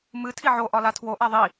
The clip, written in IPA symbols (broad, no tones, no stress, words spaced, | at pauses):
mɨ tʰiʕo ʔɒlatʰwo ʔaðˤi